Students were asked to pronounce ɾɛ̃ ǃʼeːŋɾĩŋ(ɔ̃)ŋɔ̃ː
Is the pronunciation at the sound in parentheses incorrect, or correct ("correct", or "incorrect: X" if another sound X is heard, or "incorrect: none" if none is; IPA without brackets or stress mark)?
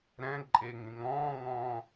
incorrect: ɔ̃ː